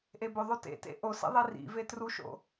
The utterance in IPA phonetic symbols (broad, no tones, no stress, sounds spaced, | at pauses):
ʔ e b ɵ ðˤ o t ḛ t ḛ ʔ o s ḭ ðˤ i r ḭ v e t r u ʃ o̰